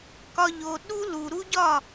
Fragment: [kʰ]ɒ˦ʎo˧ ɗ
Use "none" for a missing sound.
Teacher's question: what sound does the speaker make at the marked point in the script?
k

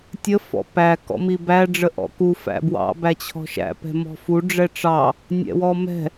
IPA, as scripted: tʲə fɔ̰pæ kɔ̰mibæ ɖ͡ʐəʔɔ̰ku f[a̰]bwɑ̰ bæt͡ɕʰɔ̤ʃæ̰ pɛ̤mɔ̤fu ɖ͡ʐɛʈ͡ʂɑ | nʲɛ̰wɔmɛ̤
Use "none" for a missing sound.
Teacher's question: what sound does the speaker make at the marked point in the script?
æ̰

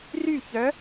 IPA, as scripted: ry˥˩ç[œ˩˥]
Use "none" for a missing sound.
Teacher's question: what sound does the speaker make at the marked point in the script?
œ˩˥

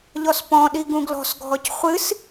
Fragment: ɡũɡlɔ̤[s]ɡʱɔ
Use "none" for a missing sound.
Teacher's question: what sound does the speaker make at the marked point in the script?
s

